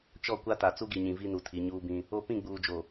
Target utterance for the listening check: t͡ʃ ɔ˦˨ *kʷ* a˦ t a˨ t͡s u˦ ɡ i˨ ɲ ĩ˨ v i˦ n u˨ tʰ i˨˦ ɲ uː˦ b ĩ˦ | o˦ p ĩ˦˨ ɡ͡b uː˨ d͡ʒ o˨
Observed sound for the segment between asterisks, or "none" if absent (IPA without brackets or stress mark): kʷ